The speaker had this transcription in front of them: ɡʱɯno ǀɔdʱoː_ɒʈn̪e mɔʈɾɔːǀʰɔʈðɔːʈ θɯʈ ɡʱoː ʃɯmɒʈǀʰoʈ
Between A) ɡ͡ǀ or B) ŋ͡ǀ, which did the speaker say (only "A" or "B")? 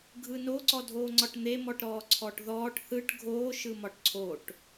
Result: B